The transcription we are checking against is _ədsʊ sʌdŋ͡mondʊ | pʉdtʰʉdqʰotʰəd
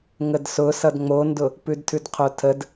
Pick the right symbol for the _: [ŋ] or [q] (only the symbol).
ŋ